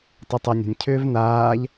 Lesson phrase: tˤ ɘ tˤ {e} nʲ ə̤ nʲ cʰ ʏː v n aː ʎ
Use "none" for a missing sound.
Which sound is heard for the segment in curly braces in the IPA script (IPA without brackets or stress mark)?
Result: ɛ